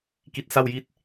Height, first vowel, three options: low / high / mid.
high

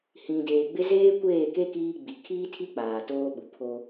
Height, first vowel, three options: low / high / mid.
high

